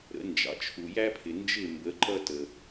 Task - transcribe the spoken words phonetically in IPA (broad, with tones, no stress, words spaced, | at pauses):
ɾə̰˩˥ nd͡ʒɑ̰˩t͡ʃʰu˩ jæ˥pʰɪ˩nd͡ʒɪ˥˩ mbə˩˥ ǃʌ˥tə˩